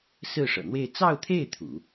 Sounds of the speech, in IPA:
s ɹ̩˥˩ ʂ ɤ̰˨˩ n̪ w e˥˧ ɪ̯ t͡s ɑ˥˧ ʊ̯ t̪ʰ e˥˩ ɪ̯ t̪ʰ ṵ˨˩˦

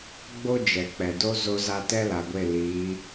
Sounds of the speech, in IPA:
ɡ͡b o˦ d͡ʒ ɛ˨ k͡p ɛ˨ d o˦ z o˦ z a˦ t ɛ˦ l a˨ ɡʷ e˦˨ l iː˨˦

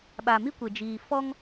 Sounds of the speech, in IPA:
ɓ a˨ m i˦ kʷ e˨ d͡ʒ iː˨ f ɔ˦ ŋ

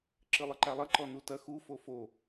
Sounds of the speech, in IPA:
ǁ ɨ lˠ ɨ ǃ a lˠ ɐ ǃ ɔ n u t ɐ x u f o f o

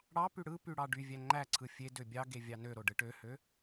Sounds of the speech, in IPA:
ɽ ɑ p y ɽ ɯ p y ɽ ɑ ɖ y vʲ æ ŋ͡ǃ æ ǀʰ ɯ fʲ e d ø bʲ ɑ ɡ e vʲ ɑ n ø ɾ o ɖ ɯ ʈ ø h ø

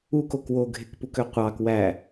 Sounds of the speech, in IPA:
u k o k w o ɡʱ e k p u k ø qʷ ɑ k w æ

